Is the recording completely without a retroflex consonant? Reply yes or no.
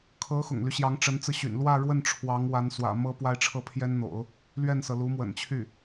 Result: no